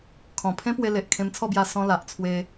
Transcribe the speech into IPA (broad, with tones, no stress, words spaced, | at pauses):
kʰɔ̃˨˩pʰẽ˦ pwe˧le˨ʔ kʰẽ˧mt͡sʰɔ˥˧bja˧ sɔ̃˧ la˨ʔt͡sʰwe˧